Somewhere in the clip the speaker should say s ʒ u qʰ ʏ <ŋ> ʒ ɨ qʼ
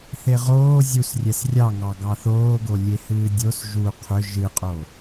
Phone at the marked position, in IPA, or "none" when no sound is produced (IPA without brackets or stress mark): none